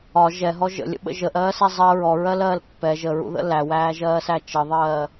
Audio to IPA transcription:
ɒ ʒ ɛ ɦ ɔ ʒ ə̰ lʲ ə̰ ɓ ə̰ ʒ ə ʔ ɜː s ɛ zˤ ɜ ɹ ɔ ɹ ɜ l ɜː l pː ɛ ʒ ə ɹ ṵ ð ə̰ l æ w æː ʒ ɜː s æ t͡ʃ ə ðˤ ɜː

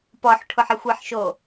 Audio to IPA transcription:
p ɔ ħ ʈʰ ʊ ħ ɪ xʷ e ħ ʃ o

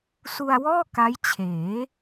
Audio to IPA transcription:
s u˧ a̯ w ɔː˥˩ k a˦˥ j t͡ɕʰ eː˩˦

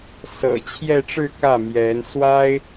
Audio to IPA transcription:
s ɤ̰˨˩ t͡ɕʰ j ɛ˥˧ ʈ͡ʂ ɻ̩˥˧ k ä˥˩ m j ɛ˧˥ n s w a˥ ɪ̯

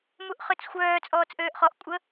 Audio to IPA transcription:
m u ʔ χ ø t͡s xʷ œː t͡sʼ ɔː t͡s ʔ øː ʔ χ ɔ ʔ kʷʼ ə

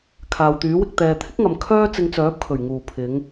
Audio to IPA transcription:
kʰ aː˨ w t̪ yː˨˥ w ɪ˧ k̚ t̪ ɛː˨ t̪ʰ ɪ˥ k̚ ŋ ɐ˨ m kʰ œː˥ t͡s ɪ˧ ŋ t͡s œː˨˥ p̚ kʰ ɵ˨˩ ɥ ŋ uː˨˩ pʰ ɪ˨˧ ŋ

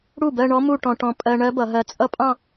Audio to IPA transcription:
ɽ u˥˩ b ɜ˥˧ ɳ ɔ˦˥ m u˥˧ ʈ ɔ̃˧ ʈ ɔ̃˧ pʼ ɜ˧ ɳ ɜ˦˥ b ʌ˩˧ ɦ ɜ˧ t͡sʼ ʌ˦˥ pʼ ɑ̃˥˧

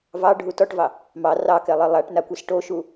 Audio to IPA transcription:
v ɑ ɖʱ u t ɔ ʈ v ɑ | m ɑ r ɑ k ɛ lˠ e lˠ a ʈ n a kʷ ɛ s ʈ o ʃ u

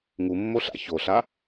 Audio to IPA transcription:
ŋ u mː o ɬ a̰ ç o ɬ a

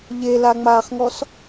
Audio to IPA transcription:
ʎ e l a ŋ͡m aː χ ŋ ɔ s

